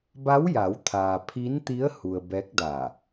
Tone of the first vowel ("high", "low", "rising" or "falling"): rising